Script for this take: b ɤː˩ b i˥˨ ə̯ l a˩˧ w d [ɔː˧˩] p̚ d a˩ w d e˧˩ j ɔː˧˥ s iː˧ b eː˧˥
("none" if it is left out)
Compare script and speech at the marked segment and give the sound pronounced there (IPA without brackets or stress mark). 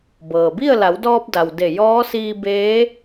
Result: ɔː˧